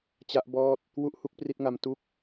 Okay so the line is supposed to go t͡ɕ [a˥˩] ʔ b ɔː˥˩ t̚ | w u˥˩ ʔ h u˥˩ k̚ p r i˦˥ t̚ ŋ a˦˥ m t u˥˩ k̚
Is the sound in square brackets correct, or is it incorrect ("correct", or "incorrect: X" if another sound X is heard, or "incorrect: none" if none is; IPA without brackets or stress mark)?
incorrect: a˦˥